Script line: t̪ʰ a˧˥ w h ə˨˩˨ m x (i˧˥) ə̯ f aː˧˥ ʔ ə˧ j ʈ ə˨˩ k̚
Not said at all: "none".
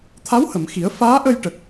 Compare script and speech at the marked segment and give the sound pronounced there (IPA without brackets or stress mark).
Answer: i˨˩˦